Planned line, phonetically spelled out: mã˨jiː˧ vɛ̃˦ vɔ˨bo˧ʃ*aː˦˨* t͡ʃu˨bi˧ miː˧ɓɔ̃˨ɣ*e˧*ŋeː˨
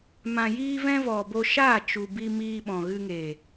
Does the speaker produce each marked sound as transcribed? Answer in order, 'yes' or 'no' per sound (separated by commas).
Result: yes, no